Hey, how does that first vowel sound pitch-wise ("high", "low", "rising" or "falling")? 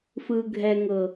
low